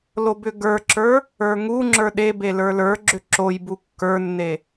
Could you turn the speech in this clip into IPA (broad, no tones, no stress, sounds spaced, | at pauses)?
l o b ʏ ɡ ə˞ ǁ ə˞ | ə˞ ŋ u ŋ͡ǁ ə˞ ɗ e b e l ə˞ l ə˞ ɡ͡ǁ ʏ ǁ o j b u kː ə˞ nː e